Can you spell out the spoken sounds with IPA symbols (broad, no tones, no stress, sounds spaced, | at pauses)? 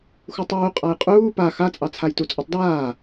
x u tˤ uː qʼ a j qʼ uː p a x a t͡sʼ ɑ t͡sʰ a j t u t͡sʼ o tˤ d aː